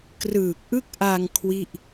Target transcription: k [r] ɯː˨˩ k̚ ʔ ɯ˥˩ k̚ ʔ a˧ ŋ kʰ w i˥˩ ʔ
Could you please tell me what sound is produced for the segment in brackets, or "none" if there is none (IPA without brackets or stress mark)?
r